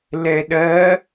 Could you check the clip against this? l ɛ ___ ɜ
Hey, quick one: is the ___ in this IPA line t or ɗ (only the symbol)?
ɗ